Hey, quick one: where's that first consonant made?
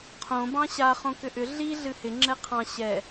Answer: uvula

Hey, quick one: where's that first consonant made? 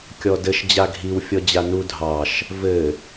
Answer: velum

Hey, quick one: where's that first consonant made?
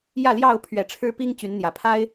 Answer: palate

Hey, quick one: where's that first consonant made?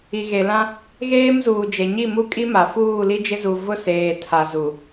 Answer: velum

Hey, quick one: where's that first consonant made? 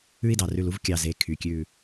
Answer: tongue tip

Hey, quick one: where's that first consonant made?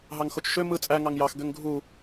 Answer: throat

